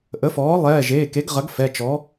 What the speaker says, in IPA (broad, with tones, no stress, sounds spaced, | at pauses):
ʔ ə˩˥ f ɔː˩˥ lˠ ɛː˩˧˩ ʒ eː˩˧˩ k e˩˥ ɡ ʁ ɐ˩˥ ɡ f ɛ˩˧˩ t͡ʃ ɔ˩˥